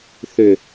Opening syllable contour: low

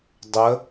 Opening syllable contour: rising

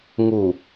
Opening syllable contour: low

